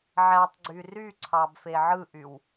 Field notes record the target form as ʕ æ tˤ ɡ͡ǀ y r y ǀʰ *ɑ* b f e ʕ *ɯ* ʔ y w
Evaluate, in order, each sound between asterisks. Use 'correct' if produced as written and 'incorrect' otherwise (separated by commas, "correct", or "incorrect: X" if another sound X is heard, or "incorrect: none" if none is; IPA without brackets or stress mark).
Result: correct, correct